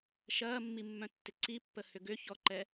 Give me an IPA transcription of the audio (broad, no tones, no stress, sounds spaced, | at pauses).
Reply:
ʃ ɐː mː i mː œ̃ tː ɪ ǀ i pː ə h ʏ ɡ ʏ ç ɔ ǃ ɛ